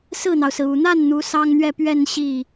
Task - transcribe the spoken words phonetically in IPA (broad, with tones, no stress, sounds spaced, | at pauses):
s ɹ̩˥˩ n̪ ɑ˩ ʊ̯ s ɹ̩˩ u˨˩ n̪ a˥˩ n n̪ u˧˥ s ɑ˥ ŋ n̪ ɥ ɛ˥˧ p ɥ ɛ˥˧ n ɕ i˥˩